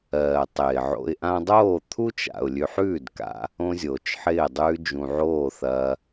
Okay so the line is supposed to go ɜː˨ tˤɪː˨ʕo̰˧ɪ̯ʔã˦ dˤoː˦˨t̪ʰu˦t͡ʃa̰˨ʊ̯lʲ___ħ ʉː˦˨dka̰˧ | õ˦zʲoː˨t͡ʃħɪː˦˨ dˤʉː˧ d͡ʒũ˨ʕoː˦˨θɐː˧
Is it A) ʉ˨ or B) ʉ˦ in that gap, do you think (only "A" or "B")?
A